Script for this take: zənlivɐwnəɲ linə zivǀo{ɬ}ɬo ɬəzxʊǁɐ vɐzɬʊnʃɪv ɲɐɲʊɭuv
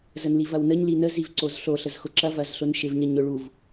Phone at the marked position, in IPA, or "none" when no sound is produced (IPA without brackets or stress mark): z